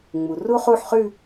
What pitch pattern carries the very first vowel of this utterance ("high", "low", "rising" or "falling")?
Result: low